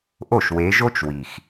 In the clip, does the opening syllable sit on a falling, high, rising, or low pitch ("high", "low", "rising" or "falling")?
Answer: falling